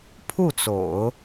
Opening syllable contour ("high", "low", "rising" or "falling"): falling